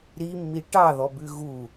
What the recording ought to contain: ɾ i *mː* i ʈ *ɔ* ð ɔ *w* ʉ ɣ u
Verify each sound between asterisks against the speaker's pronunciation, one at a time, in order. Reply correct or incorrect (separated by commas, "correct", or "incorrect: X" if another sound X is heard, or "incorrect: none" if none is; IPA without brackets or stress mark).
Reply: correct, incorrect: ɑ, incorrect: b